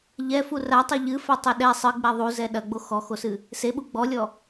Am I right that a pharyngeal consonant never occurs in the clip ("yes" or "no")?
yes